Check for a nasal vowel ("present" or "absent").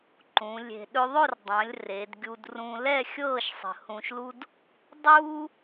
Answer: present